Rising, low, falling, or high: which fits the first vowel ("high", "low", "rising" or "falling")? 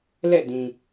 falling